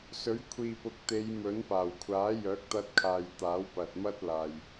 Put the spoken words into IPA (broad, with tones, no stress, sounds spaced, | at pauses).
s ɵ˨˥ ɥ kʷʰ iː˨ p ʊ˨˥ k̚ t̪ e˨˧ j m ɵ˨˥ n p aː˨˩ w kʷʰ aː˨˥ j œː˨˥ k̚ t̪ ɐ˧ t̚ kʰ aː˨ j t̪ aː˨˥ w p ɐ˨ t̚ m ɐ˥ t̚ l aː˨ j